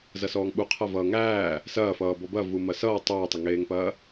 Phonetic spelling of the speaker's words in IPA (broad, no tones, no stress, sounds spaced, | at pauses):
z ɐ s ɔː ŋ ɓ u qʰ ɐ v ʌː ŋ æː | s ɐː f ʌː b ɔ b ɐ v u m ɐ s ʌː tˤ oː tˤ ə ŋ eː ŋ p ɐː